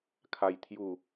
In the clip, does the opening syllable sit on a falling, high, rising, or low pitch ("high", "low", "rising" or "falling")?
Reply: low